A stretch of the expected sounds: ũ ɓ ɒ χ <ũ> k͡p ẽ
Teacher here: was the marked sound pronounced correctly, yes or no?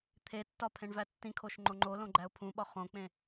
no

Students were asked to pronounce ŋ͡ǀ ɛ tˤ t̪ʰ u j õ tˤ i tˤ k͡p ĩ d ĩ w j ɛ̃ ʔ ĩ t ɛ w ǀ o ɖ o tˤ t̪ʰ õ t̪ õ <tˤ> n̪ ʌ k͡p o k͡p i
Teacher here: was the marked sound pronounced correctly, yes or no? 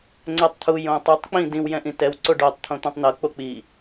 yes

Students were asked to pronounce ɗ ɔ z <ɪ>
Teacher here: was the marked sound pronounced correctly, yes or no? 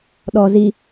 no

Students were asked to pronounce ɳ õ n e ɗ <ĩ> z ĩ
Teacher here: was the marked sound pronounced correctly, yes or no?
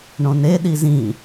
no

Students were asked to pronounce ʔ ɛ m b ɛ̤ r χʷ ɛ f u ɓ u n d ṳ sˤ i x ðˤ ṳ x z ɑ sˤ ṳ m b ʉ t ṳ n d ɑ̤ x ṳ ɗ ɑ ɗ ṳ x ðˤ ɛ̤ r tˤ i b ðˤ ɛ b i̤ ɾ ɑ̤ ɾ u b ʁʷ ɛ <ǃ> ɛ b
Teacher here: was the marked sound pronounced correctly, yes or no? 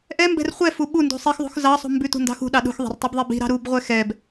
no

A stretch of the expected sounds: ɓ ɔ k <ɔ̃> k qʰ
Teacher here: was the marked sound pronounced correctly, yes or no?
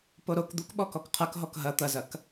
no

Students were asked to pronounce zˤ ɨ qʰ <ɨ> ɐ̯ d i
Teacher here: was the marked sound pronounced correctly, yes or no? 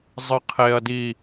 no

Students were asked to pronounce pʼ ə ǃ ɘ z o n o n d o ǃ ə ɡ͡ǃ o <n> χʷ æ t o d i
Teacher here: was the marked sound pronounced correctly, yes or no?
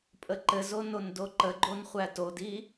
yes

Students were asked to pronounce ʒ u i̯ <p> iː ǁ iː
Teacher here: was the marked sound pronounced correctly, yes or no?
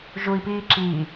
yes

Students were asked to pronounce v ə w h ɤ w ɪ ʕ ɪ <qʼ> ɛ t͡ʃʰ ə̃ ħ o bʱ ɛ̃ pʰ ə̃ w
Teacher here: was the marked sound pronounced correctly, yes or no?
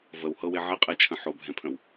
yes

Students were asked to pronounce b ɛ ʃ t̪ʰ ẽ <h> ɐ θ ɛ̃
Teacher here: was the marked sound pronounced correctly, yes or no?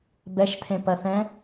no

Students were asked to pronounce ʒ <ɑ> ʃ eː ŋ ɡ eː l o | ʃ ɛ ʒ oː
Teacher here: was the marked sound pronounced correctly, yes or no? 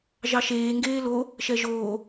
yes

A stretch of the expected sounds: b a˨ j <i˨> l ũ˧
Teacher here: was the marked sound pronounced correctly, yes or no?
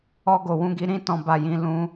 no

